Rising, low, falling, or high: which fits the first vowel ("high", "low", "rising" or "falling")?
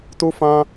high